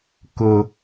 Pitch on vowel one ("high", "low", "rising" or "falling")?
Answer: low